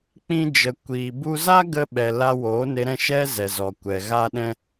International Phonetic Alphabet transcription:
k͡p ĩ˦ d͡ʒ ə˧ kʷ iː˧ b u˦ z a˦ ɡ ə˧ ɓ ɛ˨ l a˧ w oː˨˦ n e˧ ɾ ɛ̃˦˨ ʃ ɛ˦ z ɛ˨ z ɔ˨ kʷ ɛ˨ ɣ a˦ ɗ ɛ̃˦

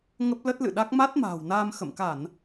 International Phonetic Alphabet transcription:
ŋ ə˦˥ p̚ l ə˦˥ t̚ l ɨ̰˧˨ ɗ a˦˥ k̚ m a˦˥ t̚ m a̤ː˨˩ w n aː˧ m x ə̰˧˨ m k a˧˩˨ n

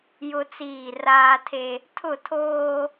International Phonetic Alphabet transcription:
j ʊ˦ t͡s iː˦˨ r aː˦ tʰ e˦ | tʰ ʊ˦˨ tʰ oː˦

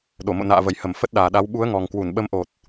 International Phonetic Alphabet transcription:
ɗ o˧˩ m o̰˧˨ n a̰ː˧˨ v ə˧˩ j h ə˧˩ m f ə˦˥ t̚ ɗ aː˨˩ ɗ a˨˦ w ɓ u˨˦ ə̯ ŋ ɔ˨˩ ŋ k w u˧˩ n ɓ ə˨˦ m ʔ o˨˩ t̚

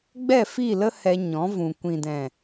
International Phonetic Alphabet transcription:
ɡ͡b ɛ˦˨ f i˦˨ l ə˦ h ɛ˧ ɲ ɔ̃˨˦ v ũ˨ kʷ ĩ˨ d ɛ̃˨

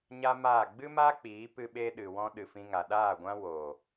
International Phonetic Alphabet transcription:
ɲ a˦ m aː˦˨ ɡ͡b ɨ˦ m a˦ k͡p iː˨˦ p ɨ˦ ɓ e˦ ɗ ɨ˨ w ɔ̃˧ ɗ ɨ˨ f ĩ˧ ŋ a˨ ɗ aː˦˨ ɡʷ ã˦ w oː˨

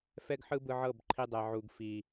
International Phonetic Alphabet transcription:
f ɛ˦ ɡ ħ ɯ˦ b ɯ˧ ʕ ɤ˦˨ b ǃʰ i˧ dˤ ɛ˨ ʕ u˨ ɡ f i˨

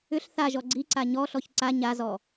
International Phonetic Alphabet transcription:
ʏ ɬ θ a ʒ ɔ ɡ͡ǀ i ǀ a ɲ ɔ ɬ ɔ ç ǀ a ɲ a z ɔ

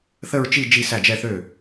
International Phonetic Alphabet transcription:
θ ə˥˧ ɹ t͡ʃ i˥˧ d͡ʒ i˥˧ s æ˥˩ d͡ʒ ɛ˥˧ θ ø˥˩

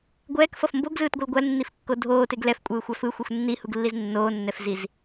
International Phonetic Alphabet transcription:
ɡʷ ɛː k f ʌ f m b o ɡ z ɯː t ɡʷ ɯ l ɡʷ a l nː i f kː o dʱ oː t e ɡ l ɛ f kʷʼ ɯː xʷ a f ɯ xʷ ɯ xʷ nː i h u ɡ lː i z nː oː nː ɛ f z i z

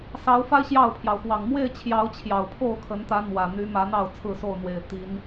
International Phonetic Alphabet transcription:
s ɑ˨˦ ʊ̯ f a˦ ɪ̯ ɕ j ɑ˥˨ ʊ̯ pʰ j ɑ˩ ʊ̯ x w ɑ˨˩ ŋ m w e˥˨ ɪ̯ t͡ɕʰ j ɑ˨˦ ʊ̯ t͡ɕʰ j ɑ˨˩ ʊ̯ pʰ o˥˨ ʊ̯ kʰ ə˨˦ n t̪ ä˨˦ n̪ w ä˨˩ n̪ y˨˦ m ä˨˦ n̪ ɑ˥˨ ʊ̯ t͡sʰ ɹ̩˥˨ s o˥˨ ʊ̯ n̪ w e˨˩ ɪ̯ t̪ i˨˦ n

